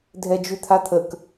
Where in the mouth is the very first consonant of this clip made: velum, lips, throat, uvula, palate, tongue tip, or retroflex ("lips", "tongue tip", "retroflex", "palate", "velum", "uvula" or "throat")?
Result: tongue tip